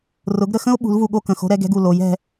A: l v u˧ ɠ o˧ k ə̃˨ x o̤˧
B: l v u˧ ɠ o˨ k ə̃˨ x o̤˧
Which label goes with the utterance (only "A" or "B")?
A